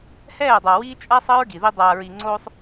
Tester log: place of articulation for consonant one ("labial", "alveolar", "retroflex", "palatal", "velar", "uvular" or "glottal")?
glottal